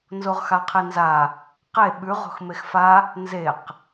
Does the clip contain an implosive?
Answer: yes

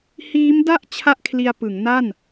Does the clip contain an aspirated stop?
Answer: yes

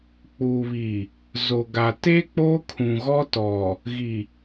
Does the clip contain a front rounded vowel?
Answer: no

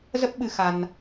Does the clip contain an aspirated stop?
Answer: no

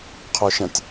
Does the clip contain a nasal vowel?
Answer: yes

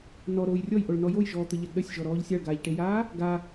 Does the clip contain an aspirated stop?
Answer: no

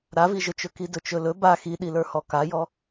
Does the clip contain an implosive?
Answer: yes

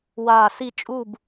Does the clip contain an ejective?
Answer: yes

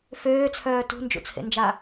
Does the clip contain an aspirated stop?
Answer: yes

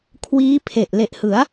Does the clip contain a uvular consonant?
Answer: no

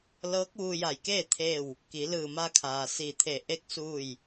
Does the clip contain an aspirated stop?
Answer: yes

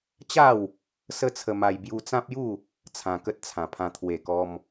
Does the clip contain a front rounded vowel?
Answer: no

